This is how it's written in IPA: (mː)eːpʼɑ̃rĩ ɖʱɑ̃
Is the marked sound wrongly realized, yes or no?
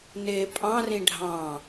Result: yes